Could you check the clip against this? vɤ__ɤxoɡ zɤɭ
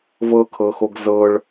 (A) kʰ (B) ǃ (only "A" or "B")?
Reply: A